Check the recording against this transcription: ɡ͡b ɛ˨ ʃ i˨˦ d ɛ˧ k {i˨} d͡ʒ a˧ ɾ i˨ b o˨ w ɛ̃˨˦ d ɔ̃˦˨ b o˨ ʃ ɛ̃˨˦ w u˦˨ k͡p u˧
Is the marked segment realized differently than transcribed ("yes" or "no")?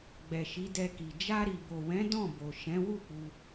no